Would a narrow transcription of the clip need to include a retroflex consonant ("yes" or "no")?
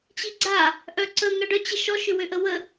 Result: yes